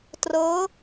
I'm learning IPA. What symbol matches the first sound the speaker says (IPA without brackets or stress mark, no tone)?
t